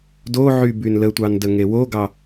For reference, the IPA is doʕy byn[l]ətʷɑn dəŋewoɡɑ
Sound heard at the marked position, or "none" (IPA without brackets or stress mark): l